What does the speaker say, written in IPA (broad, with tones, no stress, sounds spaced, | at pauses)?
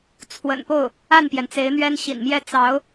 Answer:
t͡sʰ w ə̰˨˩ n p o˥˩ ʊ̯ | a˥˩ n p j ɛ˩ n t͡s e˧˥ ɪ̯ n̪ ɥ ɛ˥ n ɕ ḭ˨˩ n m j ɛ˥˩ t͡s ɑ˧˥ ʊ̯